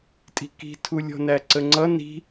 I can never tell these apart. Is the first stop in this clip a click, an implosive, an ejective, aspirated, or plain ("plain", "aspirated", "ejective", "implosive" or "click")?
ejective